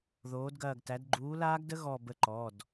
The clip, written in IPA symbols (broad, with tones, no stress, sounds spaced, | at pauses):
ð oː˨˥ d ɡ ɐː˦˨ ɡ t æ˨˥ d ɡ͡ǃ uː˨˥ l aː˦˥ ɡ d ə˦˥ ɣ ɔ˦˨ b ə˦˨ ǃ ɔ˩˧˩ d